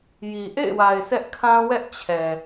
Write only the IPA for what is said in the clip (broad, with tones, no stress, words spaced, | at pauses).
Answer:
ji˨ ʔḛ˦˨ɪ̯wa˨ɪ̯ sɛ˦ʔkʰã˦wɛ˦ʔ t͡ɕʰɛ˨